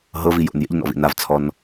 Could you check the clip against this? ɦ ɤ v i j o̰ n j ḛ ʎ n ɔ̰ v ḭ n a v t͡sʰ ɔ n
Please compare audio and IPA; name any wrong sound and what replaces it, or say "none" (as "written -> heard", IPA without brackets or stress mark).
none